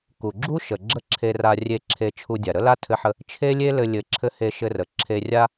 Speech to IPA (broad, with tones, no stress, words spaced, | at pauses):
ku˩ɡ͡ǁu˥ ʃə˩ ɡ͡ǁə˥ǁʰe˧ra˧rʲe˧ ǁʰe˧t͡ʃʰu˧dʲa˩ ɾə˥la˥tʰɘ˧ħə˧ | t͡ʃʰe˥lʲe˥lɘ˧ lʲɘ˧ǁʰɘ˥ he˧ʃɘ˧rə˩ ǁʰe˧rʲa˥